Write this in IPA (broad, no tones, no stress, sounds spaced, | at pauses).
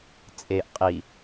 t͡sʼ e ʔ qʼ i